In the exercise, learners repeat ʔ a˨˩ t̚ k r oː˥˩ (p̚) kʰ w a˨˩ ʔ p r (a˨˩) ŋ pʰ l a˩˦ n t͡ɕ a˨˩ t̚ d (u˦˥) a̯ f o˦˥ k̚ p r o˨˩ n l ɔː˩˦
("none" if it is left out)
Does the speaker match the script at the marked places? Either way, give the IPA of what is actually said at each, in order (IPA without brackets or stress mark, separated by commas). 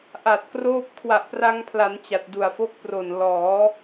p̚, a˧, u˨˩